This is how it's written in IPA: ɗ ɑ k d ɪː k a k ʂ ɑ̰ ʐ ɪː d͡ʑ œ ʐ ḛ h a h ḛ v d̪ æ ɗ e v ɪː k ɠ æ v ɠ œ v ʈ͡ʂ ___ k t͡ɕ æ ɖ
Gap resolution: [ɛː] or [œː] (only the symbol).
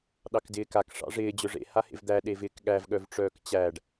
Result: œː